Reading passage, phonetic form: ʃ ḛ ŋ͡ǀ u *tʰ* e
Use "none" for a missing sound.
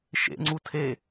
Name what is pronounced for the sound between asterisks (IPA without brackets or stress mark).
tʰ